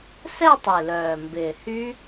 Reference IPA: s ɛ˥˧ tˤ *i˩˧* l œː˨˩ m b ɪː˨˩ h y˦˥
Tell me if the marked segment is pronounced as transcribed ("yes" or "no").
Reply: no